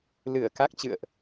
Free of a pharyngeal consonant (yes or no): yes